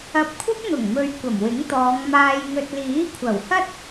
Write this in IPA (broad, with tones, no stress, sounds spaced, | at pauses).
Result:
ɐ˨ p̚ kʷʰ ɐ˥ p̚ n̪ ʊ˨˩ ŋ m ɵ˨ ɥ kʷ ɐ˨˩ m w ɪ˨˥ ŋ t̪ ɔː˨˧ ŋ m aː˧ j ŋ ɵ˨ t̚ l iː˨˥ kʷʰ ɐ˨˩ w h ɐ˥ t̚